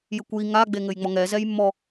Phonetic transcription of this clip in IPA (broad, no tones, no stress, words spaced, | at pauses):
jɘkʷji ŋaɡ͡be ŋɘjŋ͡mɔŋɛ zɛjmːɔ